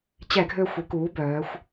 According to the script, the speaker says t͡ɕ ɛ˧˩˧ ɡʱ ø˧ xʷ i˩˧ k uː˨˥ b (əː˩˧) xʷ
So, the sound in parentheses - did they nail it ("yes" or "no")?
no